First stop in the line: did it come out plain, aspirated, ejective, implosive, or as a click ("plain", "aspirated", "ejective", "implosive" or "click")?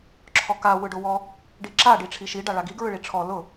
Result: click